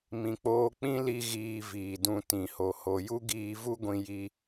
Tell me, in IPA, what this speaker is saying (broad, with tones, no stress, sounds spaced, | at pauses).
m ĩ˨ k͡p oː˧ k͡p ĩ˦ l i˦ ɣ iː˧ v iː˨ d ũ˧ t ĩ˨ h o˨ h o˨ j u˦ ɡ iː˧ v u˦ ɡʷ ĩ˧ j i˧